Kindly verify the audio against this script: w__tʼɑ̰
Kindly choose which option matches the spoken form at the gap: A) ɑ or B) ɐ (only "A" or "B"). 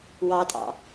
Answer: A